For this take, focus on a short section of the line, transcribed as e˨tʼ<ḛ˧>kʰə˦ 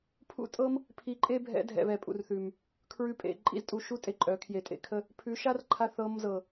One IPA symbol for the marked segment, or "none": ḛ˧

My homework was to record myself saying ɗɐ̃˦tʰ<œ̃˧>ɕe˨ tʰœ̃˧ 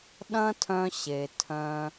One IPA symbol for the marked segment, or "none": œ̃˧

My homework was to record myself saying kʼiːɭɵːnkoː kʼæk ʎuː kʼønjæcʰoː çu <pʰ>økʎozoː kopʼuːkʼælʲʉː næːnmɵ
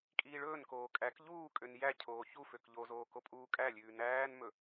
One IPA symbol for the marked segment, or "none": f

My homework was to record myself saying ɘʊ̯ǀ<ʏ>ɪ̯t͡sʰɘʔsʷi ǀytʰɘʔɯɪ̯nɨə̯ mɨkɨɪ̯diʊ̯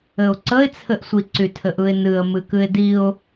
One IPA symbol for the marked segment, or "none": ə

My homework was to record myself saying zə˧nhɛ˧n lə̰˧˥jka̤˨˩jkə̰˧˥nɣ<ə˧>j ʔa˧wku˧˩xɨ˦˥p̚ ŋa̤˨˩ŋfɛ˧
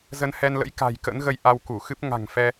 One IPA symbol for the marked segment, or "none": ə˧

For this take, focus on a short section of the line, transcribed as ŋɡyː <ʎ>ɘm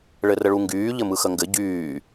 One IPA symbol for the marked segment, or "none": ʎ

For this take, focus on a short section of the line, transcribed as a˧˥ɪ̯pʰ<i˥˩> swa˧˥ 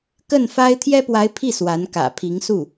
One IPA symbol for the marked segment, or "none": i˥˩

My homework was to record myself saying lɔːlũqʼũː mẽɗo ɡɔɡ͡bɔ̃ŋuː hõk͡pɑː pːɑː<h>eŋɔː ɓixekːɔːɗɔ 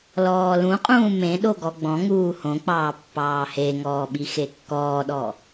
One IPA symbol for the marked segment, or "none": h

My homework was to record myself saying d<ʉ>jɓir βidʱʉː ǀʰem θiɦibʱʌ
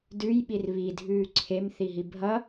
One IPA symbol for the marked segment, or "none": ʉ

